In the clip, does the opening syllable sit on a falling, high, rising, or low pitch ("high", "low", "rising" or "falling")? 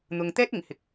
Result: low